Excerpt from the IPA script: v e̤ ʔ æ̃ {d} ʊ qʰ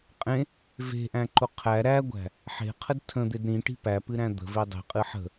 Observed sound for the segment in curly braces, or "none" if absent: ǃ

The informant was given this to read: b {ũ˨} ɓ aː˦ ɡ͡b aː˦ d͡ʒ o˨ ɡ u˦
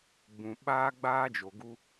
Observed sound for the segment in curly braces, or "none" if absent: ũ˨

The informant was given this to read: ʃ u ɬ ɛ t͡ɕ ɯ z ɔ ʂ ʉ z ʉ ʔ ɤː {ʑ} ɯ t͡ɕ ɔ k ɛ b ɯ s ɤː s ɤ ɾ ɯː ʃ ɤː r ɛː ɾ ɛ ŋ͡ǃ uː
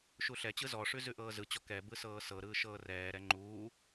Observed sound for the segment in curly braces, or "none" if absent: z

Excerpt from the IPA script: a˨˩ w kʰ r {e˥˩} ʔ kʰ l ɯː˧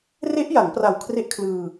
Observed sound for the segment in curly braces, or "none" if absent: e˦˥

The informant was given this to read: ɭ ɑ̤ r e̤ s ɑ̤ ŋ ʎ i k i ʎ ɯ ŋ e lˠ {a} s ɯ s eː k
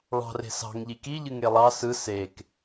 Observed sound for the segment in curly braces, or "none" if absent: ɑ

